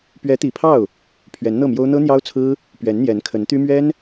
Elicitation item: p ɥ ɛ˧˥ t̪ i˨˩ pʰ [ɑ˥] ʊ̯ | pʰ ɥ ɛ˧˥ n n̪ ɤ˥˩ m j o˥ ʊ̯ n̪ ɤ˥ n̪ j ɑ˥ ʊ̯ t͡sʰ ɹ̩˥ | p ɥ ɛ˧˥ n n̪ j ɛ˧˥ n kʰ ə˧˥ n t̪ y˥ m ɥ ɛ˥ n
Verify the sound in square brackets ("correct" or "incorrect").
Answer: incorrect